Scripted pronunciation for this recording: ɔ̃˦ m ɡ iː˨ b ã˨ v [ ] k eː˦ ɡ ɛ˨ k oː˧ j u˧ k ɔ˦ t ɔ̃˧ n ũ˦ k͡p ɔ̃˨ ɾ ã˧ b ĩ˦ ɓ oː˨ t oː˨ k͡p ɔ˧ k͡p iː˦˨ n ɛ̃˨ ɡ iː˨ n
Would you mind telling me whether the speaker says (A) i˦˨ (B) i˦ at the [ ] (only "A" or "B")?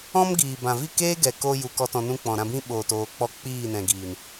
A